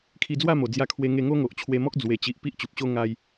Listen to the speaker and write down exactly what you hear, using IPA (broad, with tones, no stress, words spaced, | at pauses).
kʰi˧d͡zwa˥˧mo˨˩ d͡zja˧kʰwe˧ ŋe˧ŋo˦ŋo˨ʔ t͡ɕʰwe˧mɔ˦k̚ d͡zwe˨˩t͡ɕi˨ʔ pi˦ʔt͡ɕu˨p̚ɕo˦ ŋa˧j